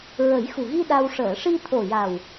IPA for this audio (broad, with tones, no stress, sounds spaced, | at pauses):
ɹ ə˨˩˦ j x u˨˩ ɣ i˧ ɗ a˧ w ʂ əː˨˩˨ ʂ i˧ t̪ʰ o˨˩ j a˨˩ w